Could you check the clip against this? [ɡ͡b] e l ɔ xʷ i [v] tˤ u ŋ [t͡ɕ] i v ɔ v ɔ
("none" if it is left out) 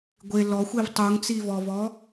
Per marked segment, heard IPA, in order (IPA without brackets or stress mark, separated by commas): ɡʷ, v, t͡s